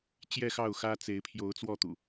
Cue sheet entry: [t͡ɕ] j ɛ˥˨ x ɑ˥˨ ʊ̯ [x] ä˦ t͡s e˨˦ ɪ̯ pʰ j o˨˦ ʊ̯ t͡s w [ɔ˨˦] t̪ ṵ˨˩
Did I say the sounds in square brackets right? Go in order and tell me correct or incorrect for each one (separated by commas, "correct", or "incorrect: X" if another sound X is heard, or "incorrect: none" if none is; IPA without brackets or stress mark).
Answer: correct, correct, incorrect: ɔ˥˨